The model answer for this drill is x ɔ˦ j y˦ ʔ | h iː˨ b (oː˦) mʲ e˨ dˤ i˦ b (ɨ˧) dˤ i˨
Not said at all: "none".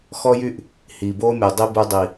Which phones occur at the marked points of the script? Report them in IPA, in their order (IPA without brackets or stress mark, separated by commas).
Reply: oː˦, y˧